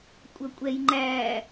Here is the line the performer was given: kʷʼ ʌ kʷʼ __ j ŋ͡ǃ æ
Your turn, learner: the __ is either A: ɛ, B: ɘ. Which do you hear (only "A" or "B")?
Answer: A